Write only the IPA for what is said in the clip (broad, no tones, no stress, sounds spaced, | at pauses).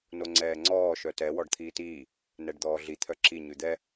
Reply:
n o ŋ͡ǀ ɛː ŋ͡ǀ ɔː ʃ œ t ɛ w ɔ ɖ t̪ʰ iː t iː | n ɛ ɖ d̪ ɔː ɮ i t̪ʰ œ ǁ i ɲ ʉ d̪ ɛ